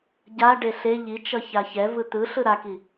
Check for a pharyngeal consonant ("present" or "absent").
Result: absent